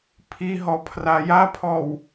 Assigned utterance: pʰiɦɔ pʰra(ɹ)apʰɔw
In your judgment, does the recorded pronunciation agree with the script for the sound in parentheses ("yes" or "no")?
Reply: no